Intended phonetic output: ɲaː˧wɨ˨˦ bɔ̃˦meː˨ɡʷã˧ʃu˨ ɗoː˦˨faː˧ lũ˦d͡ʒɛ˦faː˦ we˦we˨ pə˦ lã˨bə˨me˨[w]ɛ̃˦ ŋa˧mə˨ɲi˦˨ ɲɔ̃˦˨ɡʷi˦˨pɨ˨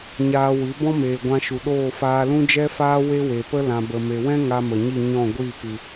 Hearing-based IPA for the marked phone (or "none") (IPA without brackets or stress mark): w